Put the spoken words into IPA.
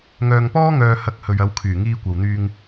ŋ œː˧ ŋ p ɔː˥ ŋ œː˧ h ɐ˧ k̚ h ɵ˨ ɥ ɐ˨˧ w kʰ yː˨˩ ŋ iː˧ kʷ ɐ˨ w n̪ yː˧ ŋ

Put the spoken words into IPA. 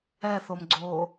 ɛ θ o m ɡ͡ǀ oː

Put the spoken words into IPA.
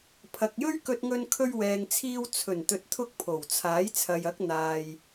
pʰ ɐ˨ k̚ j ɵ˥ ɥ k ɵ˧ t̚ ŋ ɵ˧ n kʰ ɵ˧ ɥ w ɛː˨ ŋ t͡sʰ iː˧ w t͡sʰ ɵ˨˩ n t̪ ɵ˨ t̚ t̪ʰ ʊ˧ k̚ pʰ o˨˩ w t͡sʰ aː˨˥ j t͡sʰ ɐ˨ j ɐ˨˥ k̚ n̪ aː˨ j

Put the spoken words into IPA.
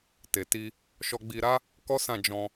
t e˨ t i˧ | ʃ ɔ˧ ɡ͡b i˧ ɾ a˦ | k ɔ˦ s ã˦˨ d͡ʒ ɔ̃˧

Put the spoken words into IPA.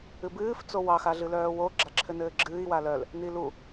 ɨ b ɨː f t͡s o w ɑ x a ɮ ɨ l œː w o ɡ͡ǁ a ǁʰ ɘ n ɘː ɡ͡ǁ ɨː i̯ w a l œ l | n i l u

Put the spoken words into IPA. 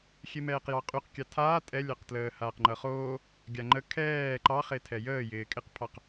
xʲ e m ɛː q j ɑ qʼ y q kʲ ɑ tʰ aː tʼ ɛ lʲ ɑ q t l əː h aː q ŋ͡ǃ ʌ χ oː | ɡʲ a ŋ͡ǃ ə kʰ ɛː ǃ ɑ χ e tʰ ɛ j əː j ɪː kʼ ɪ q pʰ ɑ q

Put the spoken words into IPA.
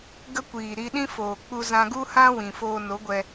ɡ ə˦ kʷ iː˨ ɾ i˧ ɗ ĩ˦ f oː˨ k͡p u˧ z ã˧ ɡ u˦ h ã˦ w ĩ˨ f oː˧ n o˨˦ ɡʷ ɛ˧

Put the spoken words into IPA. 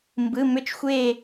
m b ɯ˩˧˩ m ʏ˦˨ t͡ʃ xʷ e˦˨

